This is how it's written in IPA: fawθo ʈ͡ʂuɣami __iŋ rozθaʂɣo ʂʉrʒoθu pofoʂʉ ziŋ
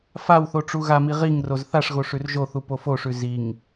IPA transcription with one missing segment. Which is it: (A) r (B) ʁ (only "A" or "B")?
B